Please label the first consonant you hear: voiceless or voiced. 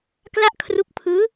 voiceless